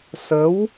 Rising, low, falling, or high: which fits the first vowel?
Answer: rising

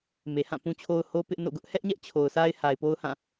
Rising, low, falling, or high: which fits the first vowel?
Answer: low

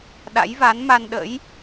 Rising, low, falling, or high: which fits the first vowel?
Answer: rising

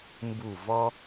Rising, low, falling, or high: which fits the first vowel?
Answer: falling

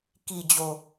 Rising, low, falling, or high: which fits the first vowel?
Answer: low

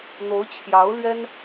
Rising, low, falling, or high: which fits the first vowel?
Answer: rising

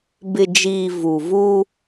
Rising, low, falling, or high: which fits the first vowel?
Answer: low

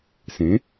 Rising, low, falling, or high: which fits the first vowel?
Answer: rising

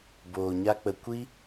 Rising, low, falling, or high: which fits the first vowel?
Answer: low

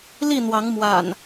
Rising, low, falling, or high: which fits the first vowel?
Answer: falling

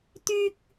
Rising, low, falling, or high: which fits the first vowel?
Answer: high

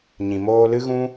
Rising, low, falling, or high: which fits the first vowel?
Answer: low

